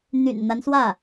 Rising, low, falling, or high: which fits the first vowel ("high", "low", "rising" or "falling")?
low